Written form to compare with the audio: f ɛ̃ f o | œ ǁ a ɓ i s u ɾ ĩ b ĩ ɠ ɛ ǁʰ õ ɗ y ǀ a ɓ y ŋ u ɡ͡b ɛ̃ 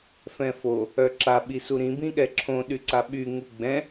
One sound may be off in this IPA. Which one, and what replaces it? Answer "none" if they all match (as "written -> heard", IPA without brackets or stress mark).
none